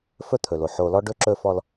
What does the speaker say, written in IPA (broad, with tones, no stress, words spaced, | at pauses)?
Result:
fɵ˦t̪ʰɵ˨lo˨ ħo˨lɔ˦ɖɵ˦ ǁɵ˦fɔ˦l